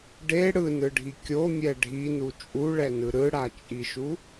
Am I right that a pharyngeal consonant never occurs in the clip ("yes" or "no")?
yes